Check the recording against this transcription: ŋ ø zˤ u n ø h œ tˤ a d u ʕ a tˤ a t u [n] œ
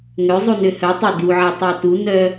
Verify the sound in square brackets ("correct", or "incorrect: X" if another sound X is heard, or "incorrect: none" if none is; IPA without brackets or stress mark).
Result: correct